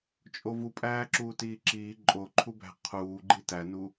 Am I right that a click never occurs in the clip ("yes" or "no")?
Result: no